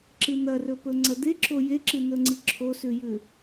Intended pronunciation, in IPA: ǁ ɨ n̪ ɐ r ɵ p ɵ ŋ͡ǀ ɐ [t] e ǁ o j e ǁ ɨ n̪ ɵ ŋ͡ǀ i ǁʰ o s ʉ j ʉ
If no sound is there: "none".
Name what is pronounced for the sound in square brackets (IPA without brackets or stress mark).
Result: d̪